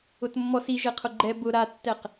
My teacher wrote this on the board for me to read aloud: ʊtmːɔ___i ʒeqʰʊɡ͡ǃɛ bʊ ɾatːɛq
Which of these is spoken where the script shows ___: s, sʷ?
s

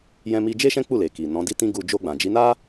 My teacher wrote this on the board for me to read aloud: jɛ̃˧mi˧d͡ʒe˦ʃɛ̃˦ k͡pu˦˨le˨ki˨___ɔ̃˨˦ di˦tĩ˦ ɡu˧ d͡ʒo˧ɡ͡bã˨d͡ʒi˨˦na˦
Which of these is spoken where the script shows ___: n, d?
n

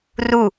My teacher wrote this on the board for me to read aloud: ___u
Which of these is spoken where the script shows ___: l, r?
r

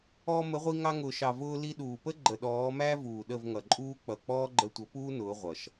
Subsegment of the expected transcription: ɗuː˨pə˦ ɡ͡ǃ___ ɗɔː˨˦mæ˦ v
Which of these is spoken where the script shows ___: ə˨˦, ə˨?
ə˨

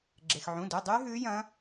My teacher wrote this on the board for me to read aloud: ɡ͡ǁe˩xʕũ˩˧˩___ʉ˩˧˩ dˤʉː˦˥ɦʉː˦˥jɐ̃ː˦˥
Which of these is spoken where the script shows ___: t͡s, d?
d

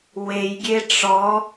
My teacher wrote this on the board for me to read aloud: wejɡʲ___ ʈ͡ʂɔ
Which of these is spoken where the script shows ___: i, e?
e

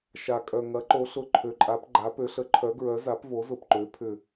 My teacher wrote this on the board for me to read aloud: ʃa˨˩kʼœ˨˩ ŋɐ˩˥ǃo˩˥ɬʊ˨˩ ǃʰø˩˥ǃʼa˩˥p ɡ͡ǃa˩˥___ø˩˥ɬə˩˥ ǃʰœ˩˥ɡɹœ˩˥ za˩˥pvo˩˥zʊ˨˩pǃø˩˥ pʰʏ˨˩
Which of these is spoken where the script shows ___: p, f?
p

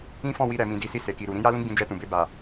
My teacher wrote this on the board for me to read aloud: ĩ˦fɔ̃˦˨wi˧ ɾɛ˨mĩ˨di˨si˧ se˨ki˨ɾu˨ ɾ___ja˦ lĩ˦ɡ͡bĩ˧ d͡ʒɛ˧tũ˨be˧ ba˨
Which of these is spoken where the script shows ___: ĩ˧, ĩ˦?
ĩ˧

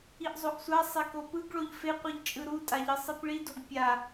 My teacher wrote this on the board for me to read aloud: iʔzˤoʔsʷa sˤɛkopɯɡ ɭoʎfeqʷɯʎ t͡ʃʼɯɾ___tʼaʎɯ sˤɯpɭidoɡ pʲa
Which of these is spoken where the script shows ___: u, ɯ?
u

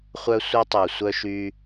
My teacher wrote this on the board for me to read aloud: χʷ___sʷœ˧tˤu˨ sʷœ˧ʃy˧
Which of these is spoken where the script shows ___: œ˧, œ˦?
œ˧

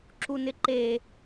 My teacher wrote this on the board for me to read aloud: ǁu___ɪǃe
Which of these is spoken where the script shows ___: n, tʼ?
n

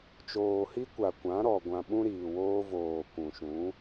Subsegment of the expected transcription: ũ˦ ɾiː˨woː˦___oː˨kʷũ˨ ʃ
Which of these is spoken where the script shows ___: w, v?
v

